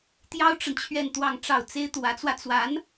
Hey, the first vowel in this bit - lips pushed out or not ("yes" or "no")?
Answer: no